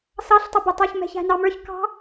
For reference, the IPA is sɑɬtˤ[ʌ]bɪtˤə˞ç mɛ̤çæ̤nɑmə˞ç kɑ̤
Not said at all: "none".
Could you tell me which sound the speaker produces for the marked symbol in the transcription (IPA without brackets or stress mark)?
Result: ʌ